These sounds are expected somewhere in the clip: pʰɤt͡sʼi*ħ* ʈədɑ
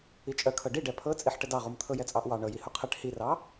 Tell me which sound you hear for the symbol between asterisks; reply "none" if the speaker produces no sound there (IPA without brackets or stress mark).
ħ